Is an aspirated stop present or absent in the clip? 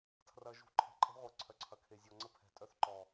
present